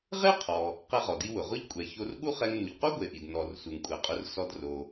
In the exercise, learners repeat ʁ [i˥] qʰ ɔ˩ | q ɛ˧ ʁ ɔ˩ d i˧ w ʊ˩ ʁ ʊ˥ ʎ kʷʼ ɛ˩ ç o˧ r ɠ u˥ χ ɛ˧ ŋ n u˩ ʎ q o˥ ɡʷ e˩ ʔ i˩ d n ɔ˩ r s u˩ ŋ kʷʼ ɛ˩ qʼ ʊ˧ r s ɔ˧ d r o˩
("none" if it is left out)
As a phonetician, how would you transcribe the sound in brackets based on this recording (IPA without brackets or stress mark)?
e˥